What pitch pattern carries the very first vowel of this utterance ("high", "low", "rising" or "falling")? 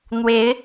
rising